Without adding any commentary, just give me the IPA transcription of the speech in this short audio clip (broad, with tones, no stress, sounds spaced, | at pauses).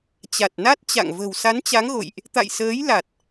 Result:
t͡ɕ a˨˩ t̚ n a˦˥ t̚ t͡ɕ a̰˧˨ ŋ v ə̤˨˩ w s a˨˦ n t͡ɕ a˨˦ ŋ ɣ o̰˧˨ j ʔ | t̪ a̰˧˨ j s əː˨˦ j l a˨˩ t̚